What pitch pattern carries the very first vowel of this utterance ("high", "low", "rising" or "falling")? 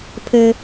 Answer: high